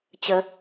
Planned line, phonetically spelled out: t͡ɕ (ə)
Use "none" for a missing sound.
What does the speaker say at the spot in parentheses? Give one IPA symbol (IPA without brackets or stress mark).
ə